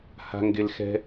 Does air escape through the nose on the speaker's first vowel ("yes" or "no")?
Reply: no